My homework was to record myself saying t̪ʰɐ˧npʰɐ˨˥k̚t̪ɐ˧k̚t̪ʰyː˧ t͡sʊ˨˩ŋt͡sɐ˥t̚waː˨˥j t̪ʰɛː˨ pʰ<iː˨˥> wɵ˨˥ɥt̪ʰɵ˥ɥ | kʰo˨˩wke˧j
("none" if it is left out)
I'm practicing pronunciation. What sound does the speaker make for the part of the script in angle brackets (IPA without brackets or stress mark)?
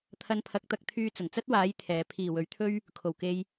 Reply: iː˨˩